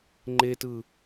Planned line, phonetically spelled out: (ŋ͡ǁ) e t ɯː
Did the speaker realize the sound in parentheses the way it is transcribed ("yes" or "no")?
no